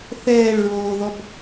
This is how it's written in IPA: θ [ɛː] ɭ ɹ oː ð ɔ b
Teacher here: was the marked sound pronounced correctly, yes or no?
yes